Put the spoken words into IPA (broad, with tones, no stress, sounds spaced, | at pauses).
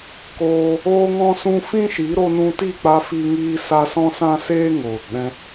k oː˧ | oː˦ ŋ ɔ̃˦ s ũ˦ f ĩ˦ ʃ i˨˦ ɾ o˧ n ũ˧ t i˦˨ k͡p a˧ f i˧ ŋ iː˧ s a˧ s ɔ̃˦ s ã˦ s eː˦ ŋ oː˨ t ɗ ɛ̃˧